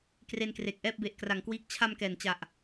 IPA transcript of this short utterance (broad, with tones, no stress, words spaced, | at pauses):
kre˧nkre˨˩k̚ʔɛː˥˩p̚be˨˩ʔ kra˩˦ŋkwiː˦˥k̚ t͡ɕʰa˧m kɛː˨˩nt͡ɕa˨˩ʔ